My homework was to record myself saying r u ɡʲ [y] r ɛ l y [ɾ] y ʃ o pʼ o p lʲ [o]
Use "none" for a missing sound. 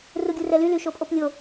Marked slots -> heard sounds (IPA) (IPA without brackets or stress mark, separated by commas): u, l, o